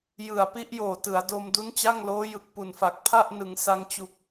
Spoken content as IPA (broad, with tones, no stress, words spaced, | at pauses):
jɯ˨˩a̯pi˦˥ʔjoː˨˩ tɯ˩˦a̯do˧m du˦˥nt͡ɕa˥˩ŋloː˦˥ jɯ˨˩k̚pu˨˩nfa˨˩k̚ pʰa˥˩ʔnɯ˩˦ŋsa˧ŋ t͡ɕu˨˩k̚